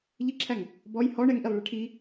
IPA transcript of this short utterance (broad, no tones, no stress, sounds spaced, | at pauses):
ʎ ɪ ǁʰ æ ŋ | b ɔ j h ɔ ɳ ɛ ŋ ʔ i lˠ ɭ ɛ ʈʰ i